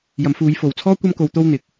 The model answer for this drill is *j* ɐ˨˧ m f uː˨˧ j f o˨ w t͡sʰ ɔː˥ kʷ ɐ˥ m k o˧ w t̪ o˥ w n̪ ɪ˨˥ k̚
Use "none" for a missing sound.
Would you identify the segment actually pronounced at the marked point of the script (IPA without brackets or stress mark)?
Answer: j